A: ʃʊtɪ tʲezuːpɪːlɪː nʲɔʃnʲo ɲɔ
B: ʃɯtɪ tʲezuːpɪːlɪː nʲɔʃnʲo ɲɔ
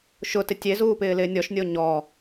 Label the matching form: A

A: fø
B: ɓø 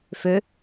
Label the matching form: A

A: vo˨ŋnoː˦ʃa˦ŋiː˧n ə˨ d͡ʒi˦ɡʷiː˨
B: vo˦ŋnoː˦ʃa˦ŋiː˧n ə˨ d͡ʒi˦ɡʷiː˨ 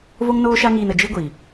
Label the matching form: B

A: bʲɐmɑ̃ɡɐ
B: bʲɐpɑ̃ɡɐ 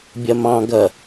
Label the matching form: A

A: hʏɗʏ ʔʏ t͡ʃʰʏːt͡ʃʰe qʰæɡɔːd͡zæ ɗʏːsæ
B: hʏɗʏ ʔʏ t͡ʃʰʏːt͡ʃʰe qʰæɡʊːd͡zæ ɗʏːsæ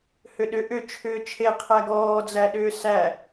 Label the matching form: A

